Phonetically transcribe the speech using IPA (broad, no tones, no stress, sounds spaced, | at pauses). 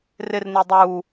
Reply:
r ɪ r n i dˤ uː